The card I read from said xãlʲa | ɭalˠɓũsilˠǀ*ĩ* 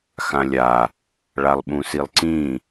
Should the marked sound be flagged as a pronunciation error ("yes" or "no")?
no